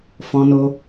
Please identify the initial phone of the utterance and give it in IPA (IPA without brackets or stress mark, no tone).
f